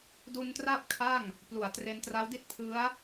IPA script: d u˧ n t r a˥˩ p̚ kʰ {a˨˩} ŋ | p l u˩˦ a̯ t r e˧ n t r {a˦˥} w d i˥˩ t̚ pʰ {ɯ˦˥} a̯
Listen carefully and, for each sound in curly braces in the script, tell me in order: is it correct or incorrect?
incorrect, correct, correct

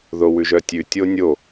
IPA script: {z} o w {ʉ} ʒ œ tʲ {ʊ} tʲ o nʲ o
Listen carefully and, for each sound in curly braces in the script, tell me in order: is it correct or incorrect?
incorrect, correct, incorrect

